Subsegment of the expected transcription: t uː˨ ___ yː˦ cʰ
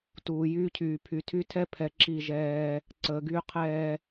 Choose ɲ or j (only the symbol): j